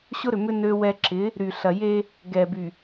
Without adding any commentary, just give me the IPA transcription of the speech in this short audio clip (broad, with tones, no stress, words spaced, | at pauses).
ɕʊ˦ɾʏ˨mʏ˦ nø˦wɛ˦ ǁɪ˨˦ | ɾy˨ɬɐ˨je˦ | ɡɛ˨by˨